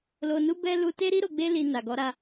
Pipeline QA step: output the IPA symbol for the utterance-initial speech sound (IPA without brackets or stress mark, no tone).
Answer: l